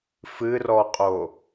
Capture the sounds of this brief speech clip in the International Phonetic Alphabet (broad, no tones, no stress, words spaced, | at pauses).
fɨrɔqʼo